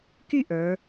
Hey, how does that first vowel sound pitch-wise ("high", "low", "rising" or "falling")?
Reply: falling